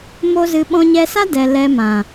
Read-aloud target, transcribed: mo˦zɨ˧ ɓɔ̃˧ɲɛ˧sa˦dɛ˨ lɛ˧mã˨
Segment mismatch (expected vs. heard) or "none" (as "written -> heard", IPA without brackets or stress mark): none